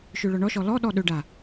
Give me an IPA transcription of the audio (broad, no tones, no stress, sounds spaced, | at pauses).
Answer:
ʃ ø ɭ ɔ ɳ ɔ ʃ ɔ l ɔ ɗ ɔ ɗ ɵ ɖ a